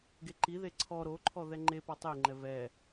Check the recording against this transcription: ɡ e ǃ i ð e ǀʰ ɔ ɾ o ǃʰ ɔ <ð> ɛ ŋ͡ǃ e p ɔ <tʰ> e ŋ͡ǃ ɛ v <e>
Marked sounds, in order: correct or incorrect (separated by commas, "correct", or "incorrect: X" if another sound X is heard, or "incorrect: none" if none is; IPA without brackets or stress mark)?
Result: correct, incorrect: tˤ, incorrect: ɛ